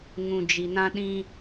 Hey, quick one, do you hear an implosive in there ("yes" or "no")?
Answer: yes